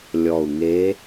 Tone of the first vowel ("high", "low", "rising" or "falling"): low